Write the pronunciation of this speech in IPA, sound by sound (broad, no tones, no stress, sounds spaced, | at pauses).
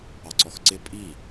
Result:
ɑ ǀ ɔ x ǀ ɪ pʼ i